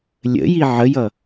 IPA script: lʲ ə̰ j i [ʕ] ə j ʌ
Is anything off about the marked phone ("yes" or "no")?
no